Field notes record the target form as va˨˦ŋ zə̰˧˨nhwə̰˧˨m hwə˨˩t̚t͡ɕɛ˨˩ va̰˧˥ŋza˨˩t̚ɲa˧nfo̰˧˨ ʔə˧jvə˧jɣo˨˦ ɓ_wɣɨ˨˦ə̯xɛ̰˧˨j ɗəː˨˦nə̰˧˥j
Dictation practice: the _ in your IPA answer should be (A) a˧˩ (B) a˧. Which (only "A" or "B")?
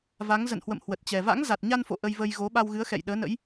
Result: B